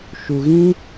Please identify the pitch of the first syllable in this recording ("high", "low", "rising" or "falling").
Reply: low